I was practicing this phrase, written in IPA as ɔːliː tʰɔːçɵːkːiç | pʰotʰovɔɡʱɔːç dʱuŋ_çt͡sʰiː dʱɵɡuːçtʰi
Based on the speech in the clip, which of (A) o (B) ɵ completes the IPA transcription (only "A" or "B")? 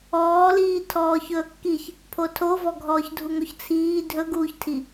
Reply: A